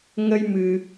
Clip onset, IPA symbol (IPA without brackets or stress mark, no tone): ŋ